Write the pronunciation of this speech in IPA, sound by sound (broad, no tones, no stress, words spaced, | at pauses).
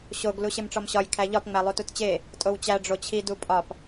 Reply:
ɕoɡ luɕemʈ͡ʂɒmɕɒj kʰæʎɒpŋ͡mælˠu tutt͡ɕe | tʼowt͡ɕæ ɖ͡ʐot͡ɕʰi dupʼɒp